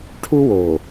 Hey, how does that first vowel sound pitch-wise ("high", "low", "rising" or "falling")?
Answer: high